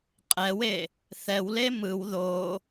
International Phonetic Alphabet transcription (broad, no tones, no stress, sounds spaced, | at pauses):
qʼ ɛ w e | θ ɛ w l e m ɯ w ð o